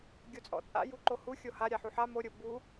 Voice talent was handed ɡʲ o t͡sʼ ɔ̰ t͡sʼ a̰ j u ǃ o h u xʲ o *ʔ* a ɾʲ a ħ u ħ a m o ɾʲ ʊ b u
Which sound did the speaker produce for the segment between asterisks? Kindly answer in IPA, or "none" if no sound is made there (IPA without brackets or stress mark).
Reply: h